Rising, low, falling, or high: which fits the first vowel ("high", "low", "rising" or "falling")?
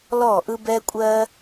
falling